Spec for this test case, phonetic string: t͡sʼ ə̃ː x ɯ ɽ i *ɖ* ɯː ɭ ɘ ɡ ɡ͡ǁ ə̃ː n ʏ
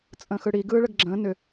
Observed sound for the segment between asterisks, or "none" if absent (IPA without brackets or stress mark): ɡ